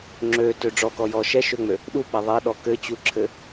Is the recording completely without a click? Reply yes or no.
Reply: no